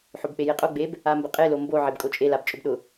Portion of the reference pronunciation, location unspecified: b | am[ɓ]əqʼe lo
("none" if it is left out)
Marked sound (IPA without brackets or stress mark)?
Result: b